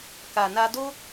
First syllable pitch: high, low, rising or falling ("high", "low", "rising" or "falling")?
low